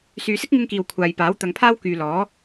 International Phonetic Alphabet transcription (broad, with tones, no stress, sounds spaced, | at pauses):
s yː˨˧ s ɪ˥ k̚ ŋ ɪ˧ ŋ k iː˨ w kʷʰ aː˨ j p aː˨˥ w t̪ ɐ˨˧ ŋ pʰ aː˥ w k yː˧ l ɔː˨˥